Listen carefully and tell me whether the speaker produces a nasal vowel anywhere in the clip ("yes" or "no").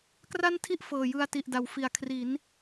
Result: no